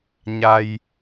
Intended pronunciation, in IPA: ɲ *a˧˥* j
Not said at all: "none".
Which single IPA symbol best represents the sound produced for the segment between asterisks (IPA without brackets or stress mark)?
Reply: a˧